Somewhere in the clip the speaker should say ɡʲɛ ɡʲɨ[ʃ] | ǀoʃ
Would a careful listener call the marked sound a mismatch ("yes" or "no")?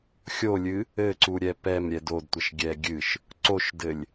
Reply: no